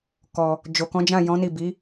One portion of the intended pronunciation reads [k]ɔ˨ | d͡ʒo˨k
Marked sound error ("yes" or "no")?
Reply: no